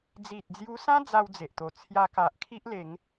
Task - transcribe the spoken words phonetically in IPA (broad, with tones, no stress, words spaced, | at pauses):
d͡zi˨t̚d͡zju˧sã˦ d͡za˦wd͡ze˨ʔt̪o˨˩ t͡sʰja˧ka˨ʔkʰi˦ʔ le˨˦ŋ